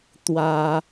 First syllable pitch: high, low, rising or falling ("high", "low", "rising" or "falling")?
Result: high